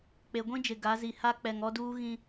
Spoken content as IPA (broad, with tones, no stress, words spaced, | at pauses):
k͡pe˨ɡʷĩ˦d͡ʒɪ˨ ɡa˨˦zi˨ ha˦ k͡pɛ˨ŋɔ˦duː˦ɣĩ˦